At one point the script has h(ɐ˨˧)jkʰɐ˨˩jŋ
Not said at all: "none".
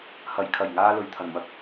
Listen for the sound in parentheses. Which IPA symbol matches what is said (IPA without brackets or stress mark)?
ɐ˨˩